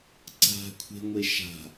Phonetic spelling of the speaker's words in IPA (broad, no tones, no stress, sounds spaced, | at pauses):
ǀ a̤ kʷʰ e̤ ŋʷ e ʃ a̤